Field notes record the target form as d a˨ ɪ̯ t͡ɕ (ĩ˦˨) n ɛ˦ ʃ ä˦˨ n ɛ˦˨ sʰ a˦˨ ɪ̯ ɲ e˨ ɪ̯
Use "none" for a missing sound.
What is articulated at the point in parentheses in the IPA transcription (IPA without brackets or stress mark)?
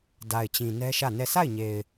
ĩ˨